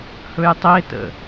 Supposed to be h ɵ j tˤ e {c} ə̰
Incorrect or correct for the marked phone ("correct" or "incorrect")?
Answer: incorrect